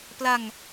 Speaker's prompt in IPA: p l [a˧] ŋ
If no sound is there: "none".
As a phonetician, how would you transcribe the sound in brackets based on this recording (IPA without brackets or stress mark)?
a˧